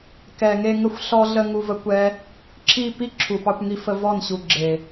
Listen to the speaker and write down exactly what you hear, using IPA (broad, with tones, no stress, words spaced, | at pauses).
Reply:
kɛ˨ŋe˧ ŋə˧xʷɬɔ˧ɮə˧ ŋu˧və˦kʷɛ˦ | ǁʰi˦˨pi˦ ǁʰu˨pɑ˧kʷŋi˧fə˧ vɔ˦˨nɕu˨ ɡ͡ǁe˨